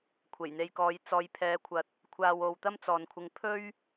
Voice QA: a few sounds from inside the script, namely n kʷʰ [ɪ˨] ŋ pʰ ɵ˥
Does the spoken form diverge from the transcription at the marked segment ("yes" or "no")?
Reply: yes